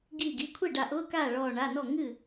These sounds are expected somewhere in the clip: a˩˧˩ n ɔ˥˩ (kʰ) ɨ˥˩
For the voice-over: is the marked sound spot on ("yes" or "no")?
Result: no